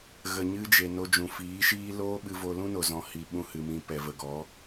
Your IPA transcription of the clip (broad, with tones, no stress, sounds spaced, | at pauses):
ɣ ə˨ ɲ ɨ˧ d͡ʒ e˨ n o˧ d͡ʒ ũ˨ f iː˨˦ ʃ iː˦ l oː˦ ɓ ɨ˧ v o˧ l ũ˦ n o˨ z ɔ̃˨˦ h i˧ ɓ ũ˦ h ɨ˧ m ĩ˧ p ɛ˨ v ə˨ ɡ ɔ˨˦